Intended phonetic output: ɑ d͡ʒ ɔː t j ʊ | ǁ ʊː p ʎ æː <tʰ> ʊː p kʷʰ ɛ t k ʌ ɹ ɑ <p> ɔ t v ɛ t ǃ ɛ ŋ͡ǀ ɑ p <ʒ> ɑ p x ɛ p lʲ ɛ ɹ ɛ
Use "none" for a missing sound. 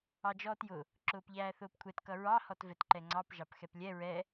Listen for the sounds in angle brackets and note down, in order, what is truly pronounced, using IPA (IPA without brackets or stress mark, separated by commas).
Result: θ, h, ʒ